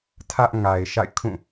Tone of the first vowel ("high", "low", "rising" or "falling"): high